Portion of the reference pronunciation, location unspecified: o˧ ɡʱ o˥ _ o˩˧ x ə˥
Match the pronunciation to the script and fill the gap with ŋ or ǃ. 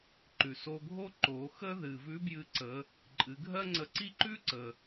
ǃ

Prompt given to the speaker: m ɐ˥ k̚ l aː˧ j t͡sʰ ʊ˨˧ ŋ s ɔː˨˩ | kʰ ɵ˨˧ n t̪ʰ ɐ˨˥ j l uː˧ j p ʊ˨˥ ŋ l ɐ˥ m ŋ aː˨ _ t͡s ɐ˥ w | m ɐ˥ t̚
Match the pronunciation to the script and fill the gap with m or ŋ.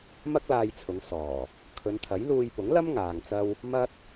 ŋ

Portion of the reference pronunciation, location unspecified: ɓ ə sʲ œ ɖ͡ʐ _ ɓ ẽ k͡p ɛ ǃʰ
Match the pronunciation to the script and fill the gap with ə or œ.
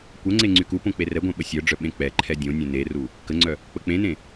œ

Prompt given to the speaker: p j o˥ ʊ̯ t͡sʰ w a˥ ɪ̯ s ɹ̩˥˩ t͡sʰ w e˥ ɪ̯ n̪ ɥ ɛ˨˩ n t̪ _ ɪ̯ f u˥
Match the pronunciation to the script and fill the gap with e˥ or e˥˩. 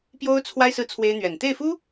e˥˩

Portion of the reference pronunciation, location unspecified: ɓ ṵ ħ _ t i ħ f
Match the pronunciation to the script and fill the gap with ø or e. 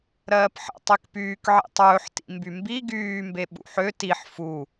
ø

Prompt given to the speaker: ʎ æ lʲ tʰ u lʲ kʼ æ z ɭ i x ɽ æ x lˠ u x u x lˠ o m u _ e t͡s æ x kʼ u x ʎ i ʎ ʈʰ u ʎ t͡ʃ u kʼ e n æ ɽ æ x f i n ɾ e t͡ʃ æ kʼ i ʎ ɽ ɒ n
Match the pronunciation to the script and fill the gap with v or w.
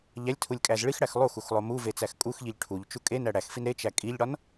v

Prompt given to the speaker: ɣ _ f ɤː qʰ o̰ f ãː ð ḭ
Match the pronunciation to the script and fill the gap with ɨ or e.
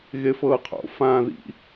e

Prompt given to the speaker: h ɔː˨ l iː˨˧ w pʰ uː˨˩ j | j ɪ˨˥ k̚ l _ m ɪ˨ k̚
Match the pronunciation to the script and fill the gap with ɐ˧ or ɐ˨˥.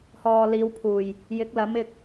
ɐ˨˥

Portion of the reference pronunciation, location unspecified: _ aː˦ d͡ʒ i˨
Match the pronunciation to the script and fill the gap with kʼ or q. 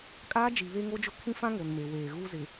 kʼ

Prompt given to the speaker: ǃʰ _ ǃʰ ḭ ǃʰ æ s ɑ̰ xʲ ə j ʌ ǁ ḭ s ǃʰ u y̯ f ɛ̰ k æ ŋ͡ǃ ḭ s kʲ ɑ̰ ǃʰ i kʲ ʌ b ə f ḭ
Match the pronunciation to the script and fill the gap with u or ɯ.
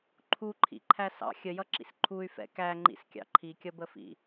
u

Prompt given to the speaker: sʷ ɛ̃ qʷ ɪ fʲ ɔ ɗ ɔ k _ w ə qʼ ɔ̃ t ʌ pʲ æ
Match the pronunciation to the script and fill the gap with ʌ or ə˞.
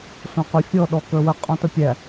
ə˞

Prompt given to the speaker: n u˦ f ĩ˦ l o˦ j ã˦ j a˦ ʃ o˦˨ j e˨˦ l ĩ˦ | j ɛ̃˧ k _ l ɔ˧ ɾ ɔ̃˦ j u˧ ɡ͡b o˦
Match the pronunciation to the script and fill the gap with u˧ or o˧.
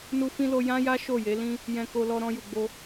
o˧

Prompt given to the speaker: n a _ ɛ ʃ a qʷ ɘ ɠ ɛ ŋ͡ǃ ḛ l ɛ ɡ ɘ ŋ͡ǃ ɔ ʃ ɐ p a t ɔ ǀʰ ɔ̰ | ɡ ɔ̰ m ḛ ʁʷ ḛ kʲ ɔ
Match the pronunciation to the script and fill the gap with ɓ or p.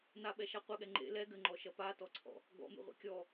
ɓ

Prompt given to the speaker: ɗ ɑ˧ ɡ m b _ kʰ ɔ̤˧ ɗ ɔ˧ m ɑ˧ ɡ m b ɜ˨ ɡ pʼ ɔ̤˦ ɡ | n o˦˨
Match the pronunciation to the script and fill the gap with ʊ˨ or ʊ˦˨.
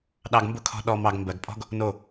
ʊ˦˨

